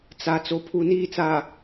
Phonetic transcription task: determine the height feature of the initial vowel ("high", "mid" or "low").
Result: low